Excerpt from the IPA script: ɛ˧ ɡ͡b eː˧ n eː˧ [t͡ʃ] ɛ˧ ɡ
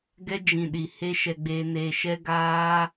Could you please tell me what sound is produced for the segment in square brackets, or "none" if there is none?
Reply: ʃ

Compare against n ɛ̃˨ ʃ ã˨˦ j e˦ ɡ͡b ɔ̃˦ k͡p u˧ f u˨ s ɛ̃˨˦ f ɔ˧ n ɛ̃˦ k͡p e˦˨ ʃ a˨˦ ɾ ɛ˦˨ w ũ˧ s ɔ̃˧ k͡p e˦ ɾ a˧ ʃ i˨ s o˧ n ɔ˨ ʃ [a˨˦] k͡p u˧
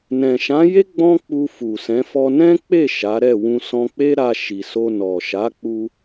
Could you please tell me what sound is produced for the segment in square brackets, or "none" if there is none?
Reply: a˨˦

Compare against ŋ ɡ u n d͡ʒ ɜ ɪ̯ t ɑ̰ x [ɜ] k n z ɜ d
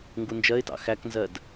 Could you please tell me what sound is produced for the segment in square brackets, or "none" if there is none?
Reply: æ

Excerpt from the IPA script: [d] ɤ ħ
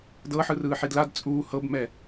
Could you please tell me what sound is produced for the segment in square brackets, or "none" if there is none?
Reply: d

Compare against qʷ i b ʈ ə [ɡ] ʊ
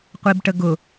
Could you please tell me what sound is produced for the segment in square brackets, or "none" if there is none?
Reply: ɡ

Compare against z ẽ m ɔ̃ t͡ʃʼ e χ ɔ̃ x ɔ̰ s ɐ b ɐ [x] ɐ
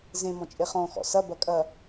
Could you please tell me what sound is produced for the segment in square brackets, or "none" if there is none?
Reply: kʼ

